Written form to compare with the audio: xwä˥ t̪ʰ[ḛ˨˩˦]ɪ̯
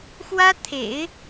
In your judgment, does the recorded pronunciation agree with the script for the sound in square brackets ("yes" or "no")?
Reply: yes